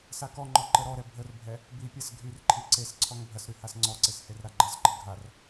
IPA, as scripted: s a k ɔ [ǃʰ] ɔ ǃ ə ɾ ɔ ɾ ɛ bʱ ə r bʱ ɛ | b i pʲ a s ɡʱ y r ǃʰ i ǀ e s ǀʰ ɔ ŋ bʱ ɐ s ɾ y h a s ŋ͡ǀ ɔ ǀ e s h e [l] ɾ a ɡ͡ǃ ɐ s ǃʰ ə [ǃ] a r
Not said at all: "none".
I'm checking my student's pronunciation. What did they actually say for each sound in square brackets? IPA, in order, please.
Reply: ŋ͡ǃ, r, ɡʱ

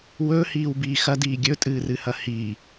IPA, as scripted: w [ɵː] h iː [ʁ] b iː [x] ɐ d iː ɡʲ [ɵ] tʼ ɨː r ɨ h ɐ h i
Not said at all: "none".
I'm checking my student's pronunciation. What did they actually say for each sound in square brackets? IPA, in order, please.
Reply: ɵː, w, x, ɵ

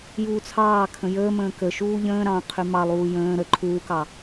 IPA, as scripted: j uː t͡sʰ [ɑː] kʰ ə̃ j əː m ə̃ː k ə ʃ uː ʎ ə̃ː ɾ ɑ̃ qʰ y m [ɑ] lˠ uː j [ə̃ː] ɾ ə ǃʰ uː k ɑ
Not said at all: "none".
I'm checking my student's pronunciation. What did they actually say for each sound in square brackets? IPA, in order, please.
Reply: ɑː, ɑ, ə̃ː

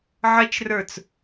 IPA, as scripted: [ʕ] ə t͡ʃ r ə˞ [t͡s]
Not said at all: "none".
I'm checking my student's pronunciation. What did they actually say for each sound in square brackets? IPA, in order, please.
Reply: ʕ, t͡s

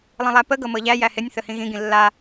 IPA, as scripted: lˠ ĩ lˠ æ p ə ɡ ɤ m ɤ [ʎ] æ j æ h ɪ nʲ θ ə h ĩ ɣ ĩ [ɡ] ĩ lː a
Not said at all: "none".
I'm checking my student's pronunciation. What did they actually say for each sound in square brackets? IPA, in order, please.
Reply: ʎ, ɡ

